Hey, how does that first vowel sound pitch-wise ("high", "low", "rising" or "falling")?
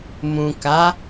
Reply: low